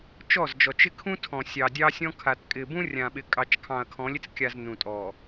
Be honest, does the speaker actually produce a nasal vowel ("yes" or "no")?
yes